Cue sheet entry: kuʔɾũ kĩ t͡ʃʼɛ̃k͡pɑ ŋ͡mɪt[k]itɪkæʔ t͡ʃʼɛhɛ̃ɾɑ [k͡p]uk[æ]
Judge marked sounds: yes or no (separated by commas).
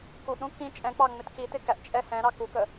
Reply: yes, no, no